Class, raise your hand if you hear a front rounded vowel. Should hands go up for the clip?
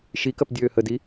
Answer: yes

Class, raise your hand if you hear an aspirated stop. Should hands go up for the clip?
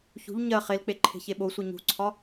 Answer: yes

